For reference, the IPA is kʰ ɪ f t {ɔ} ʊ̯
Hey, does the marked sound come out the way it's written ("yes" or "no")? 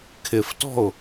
no